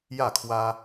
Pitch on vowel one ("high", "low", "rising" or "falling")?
falling